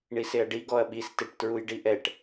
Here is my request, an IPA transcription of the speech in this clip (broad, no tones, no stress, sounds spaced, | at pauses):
ɳ i s e ɐ̯ ɖ i ɡ ɔ ɐ̯ ɓ i s t e ʈ t ɹ u j ɖ i ʔ ɛ ʈ